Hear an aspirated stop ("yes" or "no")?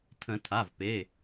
yes